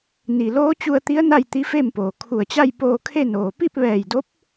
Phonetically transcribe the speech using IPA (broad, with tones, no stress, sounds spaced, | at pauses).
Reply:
n i˩ l oː˧˥ t͡ɕ u˧ ə̯ t̪ i˧˥ ə̯ n a˥˨ j t̪ i˧˥ f e˥˨ m p oː˩ kʰ u˧˩ ə̯ t͡ɕ a˥˨ j p oː˧ kʰ e˥˨ n oː˩ p i˥˨ p̚ ʋ ɛː˧˩ j d o˧˥ p̚